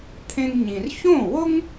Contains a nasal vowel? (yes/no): yes